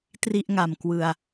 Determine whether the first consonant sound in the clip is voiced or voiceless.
voiceless